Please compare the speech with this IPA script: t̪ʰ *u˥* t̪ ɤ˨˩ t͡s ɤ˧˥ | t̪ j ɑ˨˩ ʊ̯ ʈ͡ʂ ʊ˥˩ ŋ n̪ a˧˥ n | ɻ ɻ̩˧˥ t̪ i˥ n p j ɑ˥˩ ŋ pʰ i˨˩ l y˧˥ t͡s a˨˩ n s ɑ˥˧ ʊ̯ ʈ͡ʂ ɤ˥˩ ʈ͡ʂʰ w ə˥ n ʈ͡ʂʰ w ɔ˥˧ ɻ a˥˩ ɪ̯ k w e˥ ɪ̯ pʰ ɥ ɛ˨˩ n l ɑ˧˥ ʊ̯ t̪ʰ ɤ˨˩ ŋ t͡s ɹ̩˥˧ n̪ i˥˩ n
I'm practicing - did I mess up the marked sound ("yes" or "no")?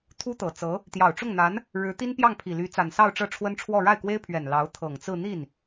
no